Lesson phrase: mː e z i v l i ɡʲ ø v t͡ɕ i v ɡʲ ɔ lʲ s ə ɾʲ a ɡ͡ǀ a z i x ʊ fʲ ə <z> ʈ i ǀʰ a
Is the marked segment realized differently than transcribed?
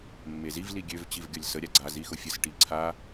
yes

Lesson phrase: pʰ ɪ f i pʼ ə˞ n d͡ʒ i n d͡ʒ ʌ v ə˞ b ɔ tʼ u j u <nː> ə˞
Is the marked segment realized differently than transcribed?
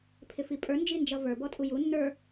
no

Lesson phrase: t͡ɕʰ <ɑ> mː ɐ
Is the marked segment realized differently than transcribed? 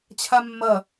yes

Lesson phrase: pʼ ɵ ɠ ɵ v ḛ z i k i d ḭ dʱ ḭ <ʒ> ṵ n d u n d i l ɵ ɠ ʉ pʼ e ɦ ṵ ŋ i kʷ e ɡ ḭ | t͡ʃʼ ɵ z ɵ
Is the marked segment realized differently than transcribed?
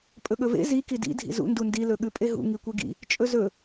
yes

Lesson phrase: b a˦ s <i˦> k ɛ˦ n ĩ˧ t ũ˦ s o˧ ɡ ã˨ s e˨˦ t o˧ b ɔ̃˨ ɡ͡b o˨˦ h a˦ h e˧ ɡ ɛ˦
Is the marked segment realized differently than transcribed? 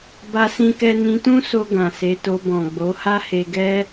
yes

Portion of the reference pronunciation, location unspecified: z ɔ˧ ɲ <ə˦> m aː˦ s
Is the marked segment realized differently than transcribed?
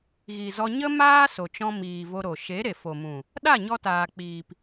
no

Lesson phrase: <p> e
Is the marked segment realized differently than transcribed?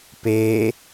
no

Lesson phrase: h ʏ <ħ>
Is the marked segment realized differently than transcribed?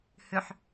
no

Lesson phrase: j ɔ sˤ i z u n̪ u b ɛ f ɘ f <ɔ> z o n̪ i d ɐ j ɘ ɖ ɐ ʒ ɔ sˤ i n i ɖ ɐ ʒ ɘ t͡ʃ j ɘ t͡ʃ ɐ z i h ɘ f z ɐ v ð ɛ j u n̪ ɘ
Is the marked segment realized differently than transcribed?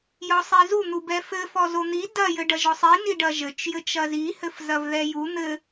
no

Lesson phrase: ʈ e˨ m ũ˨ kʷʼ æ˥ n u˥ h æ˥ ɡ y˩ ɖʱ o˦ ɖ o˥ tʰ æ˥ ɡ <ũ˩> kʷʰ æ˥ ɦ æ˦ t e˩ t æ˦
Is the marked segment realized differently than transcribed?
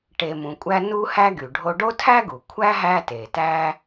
yes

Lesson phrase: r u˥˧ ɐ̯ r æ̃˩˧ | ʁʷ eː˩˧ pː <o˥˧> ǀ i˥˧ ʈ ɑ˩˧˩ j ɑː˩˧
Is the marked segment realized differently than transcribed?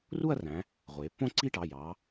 yes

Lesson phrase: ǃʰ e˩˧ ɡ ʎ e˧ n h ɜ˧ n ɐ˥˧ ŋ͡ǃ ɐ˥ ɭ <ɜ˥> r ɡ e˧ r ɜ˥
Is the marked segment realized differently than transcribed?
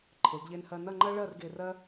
yes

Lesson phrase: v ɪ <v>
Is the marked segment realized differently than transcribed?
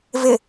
yes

